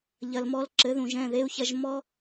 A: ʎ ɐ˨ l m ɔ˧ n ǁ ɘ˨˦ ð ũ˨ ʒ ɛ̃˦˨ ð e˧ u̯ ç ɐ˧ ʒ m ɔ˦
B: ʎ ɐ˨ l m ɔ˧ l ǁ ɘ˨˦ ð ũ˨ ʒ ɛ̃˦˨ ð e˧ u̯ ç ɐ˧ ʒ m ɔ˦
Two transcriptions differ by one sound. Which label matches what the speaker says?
B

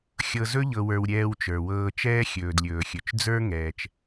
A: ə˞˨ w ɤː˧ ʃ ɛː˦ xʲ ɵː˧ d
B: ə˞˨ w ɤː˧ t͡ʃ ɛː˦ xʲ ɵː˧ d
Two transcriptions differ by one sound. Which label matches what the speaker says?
B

